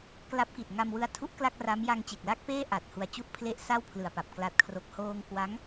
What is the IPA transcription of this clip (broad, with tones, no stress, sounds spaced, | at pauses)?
k l a˦˥ p̚ k i˨˩ t̚ ŋ a˧ m w ɯ˧ a̯ tʰ u˦˥ ʔ k l a˥˩ k̚ r a˦˥ m j a˧ ŋ t͡ɕ e˨˩ k̚ l a˥˩ k̚ p eː˥˩ ʔ a˨˩ t̚ h u˧ a̯ t͡ɕ u˥˩ ʔ pʰ l e˥˩ ʔ s a˥˩ w pʰ l ɯ˨˩ a̯ p a˨˩ p̚ k l a˨˩ t̚ kʰ r o˨˩ k̚ h oː˧ ŋ k w a˦˥ ŋ